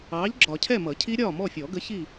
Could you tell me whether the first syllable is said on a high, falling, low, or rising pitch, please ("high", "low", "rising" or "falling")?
rising